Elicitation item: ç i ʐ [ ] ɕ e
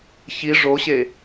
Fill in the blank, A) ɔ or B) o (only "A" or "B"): B